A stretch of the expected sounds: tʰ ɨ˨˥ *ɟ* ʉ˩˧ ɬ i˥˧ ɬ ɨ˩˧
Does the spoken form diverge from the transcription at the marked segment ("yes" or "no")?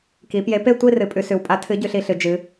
no